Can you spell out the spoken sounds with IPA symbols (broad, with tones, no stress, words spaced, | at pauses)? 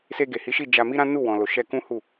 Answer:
se˧ɡe˨hi˨˦ʃi˦˨ d͡ʒa˧mi˦ɾã˦ nu˦˨wɔ̃˨lo˨ʃɛ˧ kũ˦hu˦˨